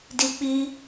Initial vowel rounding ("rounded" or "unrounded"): unrounded